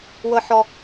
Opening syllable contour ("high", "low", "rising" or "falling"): high